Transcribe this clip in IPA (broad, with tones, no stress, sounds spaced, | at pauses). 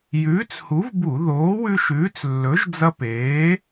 j ʉː˨˥ t͡s h u˨˥ v b u˧˩˧ ð oː˨˥ w ʉ˦ ʃ ʉː˨˥ t͡s lː ɵ˨˥ ʒ d͡z ɐ˦ p eː˨˥